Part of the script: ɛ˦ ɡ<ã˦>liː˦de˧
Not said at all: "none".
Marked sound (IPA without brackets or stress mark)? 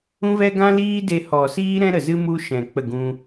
ã˦